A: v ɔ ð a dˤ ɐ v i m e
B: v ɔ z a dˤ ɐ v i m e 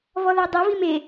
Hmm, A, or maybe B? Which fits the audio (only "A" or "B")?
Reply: A